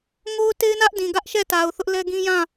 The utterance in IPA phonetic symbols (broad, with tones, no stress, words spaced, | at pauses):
ŋo˦ʊ̯te˦ɪ̯nä˦ʔ dĩ˨ɡä˦ʔʃɛ˦˨ta˨ʊ̯ θʊ˦ʔlɛ˦ ɡĩ˦jã˦˨